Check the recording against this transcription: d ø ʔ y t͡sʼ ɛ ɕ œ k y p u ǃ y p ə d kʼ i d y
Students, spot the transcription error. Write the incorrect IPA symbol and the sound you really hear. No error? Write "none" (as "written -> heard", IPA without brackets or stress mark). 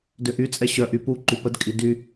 k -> ʔ